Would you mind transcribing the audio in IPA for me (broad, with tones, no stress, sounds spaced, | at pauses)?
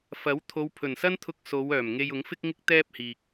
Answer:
f ɐ˨˥ w t̪ʰ o˨˧ w pʰ ɵ˨˩ n s ɐ˥ n t̪ʰ ʊ˧ k̚ s o˨˧ w œː˨˩ m ŋ e˧ j ʊ˨˥ ŋ f ɪ˥ k̚ ŋ ɪ˥ k̚ t̪ ɛː˥ p̚ h iː˨ k̚